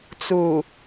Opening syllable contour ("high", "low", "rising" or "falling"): low